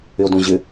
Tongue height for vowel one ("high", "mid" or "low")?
high